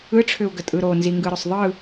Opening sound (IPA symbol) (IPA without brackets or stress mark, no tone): ɯ